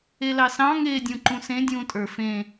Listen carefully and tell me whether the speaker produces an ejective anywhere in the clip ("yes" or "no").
yes